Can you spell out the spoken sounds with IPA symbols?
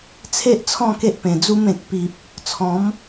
t͡sʰ e˦ ʔ t͡sʰ ɔ̃˥˧ k e˦ ʔ p ẽ˨˩ d͡z u˦ m ẽ˨ k̚ p i˨ p̚ | t͡sʰ ɔ̃˨˦ m

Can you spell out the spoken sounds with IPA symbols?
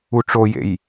u ʈ͡ʂ o j ḛ j

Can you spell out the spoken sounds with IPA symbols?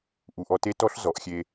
ʔ u˩ ʔ ɔ˧ t e˥ t ɔ˥ ɬ z ɔ˩˧ ʔ xʲ e˧

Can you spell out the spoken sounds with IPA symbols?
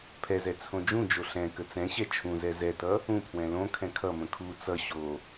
pʰ ɛ z ɛ t͡sʰ õ d͡ʒ ũ d͡ʒ o ɬ ɛ̃ k ə t͡s ɛ̃ ɕ ɛ t͡ʃʰ ũ z ɛ z ɛ t ʌ | ũ pʰ w ɛ̃ l õ kʰ ɛ̃ kʰ ʌ m ə̃ kʰ u t͡s ʌ ɕ o

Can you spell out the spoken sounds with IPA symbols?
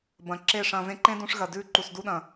b ɐ̃˨ ǁ e˦˨ ʂ ɐ̃˧ v ẽ˦ ǃ ẽ˦ d ũ˧ ʂ ɣ ɐ˨ d ʉ˧ ǃ u˨ s d u˧ ɗ ɐ̃˨

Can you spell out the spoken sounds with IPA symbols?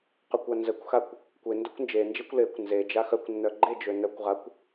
q œ kʷ a n z ə kʷ x a kʷ | kʷ e n d œ kʷ n d͡ʒ e n d͡ʒ e kʷ l e kʷ n z e d͡ʒ a x œ kʷ nː œ ɡ͡ǃ e d͡ʒ ø n œ kʷ ʁ a kʷ

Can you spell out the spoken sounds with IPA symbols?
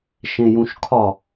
ʃ ẽ j ũ ʃ kʰ ɒ

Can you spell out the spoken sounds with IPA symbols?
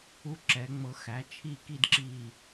u˦ ǁ ɛ˨˦ ŋ͡m ɤ˧ x æ˨˦ t͡ʃʰ i˦˨ k i˦ d ǁ i˦˨

